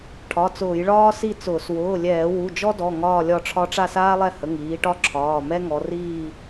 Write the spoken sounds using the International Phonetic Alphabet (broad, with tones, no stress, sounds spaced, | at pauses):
ʈʰ ɒ˩˧˩ t͡s ʊː˧˩˧ j ɭ ɒː˥ s i˥˧ t͡s ʊː˧˩˧ s w ʊː˩˧˩ lʲ ɛː˧˩˧ w u˩˧˩ d͡ʒ ɔ˥ d ɔ˩˧˩ ŋ ɒː˥˧ lʲ ɒ˥˧ ʈ͡ʂʰ ɒ˥ ʈ͡ʂ a˥˧ s aː˥ lˠ ɛ˥˧ h ə˩˧˩ ŋ iː˨˦ ʈ ɒ˥ ǁʰ ɒː˩˧˩ m ɛ˥ ŋ ɔ˨˦ r iː˥˧